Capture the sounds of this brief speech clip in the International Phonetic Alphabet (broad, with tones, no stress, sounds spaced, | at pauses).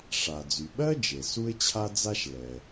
ʂ a˩ d͡z y˩ ɓ ɜ˥ d͡ʒ e˩ s u˥ ɪ̯ t͡ɕʰ a˥ d͡z a˥ ʃ l ɛ˩